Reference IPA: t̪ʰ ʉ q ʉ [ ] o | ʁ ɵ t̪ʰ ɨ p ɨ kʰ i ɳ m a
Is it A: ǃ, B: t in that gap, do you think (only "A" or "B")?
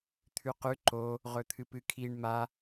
A